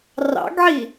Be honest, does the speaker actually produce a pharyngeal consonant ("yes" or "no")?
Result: yes